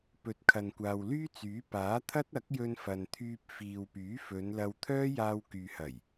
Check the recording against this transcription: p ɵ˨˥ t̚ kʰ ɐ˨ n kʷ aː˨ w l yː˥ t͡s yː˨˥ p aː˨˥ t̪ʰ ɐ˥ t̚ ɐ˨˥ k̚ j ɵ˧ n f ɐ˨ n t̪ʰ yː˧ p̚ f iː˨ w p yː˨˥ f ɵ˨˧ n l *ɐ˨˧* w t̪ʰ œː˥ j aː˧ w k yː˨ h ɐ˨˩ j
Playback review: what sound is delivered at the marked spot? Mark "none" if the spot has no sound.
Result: ɐ˧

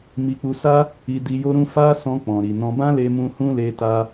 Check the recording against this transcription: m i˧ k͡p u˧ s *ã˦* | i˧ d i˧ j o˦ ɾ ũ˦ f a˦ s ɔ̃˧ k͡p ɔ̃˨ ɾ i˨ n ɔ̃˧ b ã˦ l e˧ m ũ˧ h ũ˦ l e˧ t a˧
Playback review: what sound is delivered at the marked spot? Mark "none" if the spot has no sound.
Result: a˦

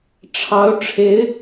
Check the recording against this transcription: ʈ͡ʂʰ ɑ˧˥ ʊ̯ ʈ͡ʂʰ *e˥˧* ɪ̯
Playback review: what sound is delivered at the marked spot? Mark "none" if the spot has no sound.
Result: e˧˥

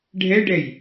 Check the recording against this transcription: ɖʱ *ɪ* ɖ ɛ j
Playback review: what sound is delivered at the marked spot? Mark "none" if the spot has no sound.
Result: ɛ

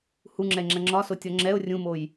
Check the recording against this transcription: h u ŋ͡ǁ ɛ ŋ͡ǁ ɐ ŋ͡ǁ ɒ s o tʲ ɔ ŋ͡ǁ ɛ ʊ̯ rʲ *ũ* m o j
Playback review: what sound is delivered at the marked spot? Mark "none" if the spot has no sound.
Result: ũ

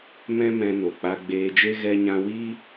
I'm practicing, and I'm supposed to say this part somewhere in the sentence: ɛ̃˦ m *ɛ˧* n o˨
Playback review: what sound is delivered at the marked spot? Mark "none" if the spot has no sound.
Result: ɛ̃˧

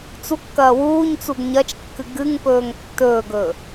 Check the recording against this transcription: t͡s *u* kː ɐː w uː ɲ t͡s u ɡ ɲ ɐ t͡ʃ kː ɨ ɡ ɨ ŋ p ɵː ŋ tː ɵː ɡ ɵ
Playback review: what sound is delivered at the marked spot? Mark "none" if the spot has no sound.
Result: u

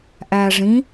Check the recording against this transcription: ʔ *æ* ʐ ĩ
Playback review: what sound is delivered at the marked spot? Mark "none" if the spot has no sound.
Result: æ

